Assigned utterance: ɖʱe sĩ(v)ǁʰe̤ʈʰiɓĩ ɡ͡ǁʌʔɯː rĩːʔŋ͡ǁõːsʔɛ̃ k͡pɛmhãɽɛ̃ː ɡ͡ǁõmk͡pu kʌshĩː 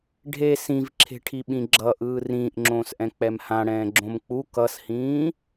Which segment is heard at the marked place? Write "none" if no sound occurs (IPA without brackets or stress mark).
v